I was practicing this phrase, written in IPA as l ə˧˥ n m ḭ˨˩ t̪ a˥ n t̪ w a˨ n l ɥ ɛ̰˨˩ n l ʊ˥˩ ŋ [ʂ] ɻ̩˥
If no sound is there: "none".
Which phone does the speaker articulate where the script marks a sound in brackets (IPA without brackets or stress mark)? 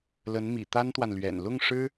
ʂ